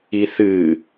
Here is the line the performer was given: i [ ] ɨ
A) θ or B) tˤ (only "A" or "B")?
A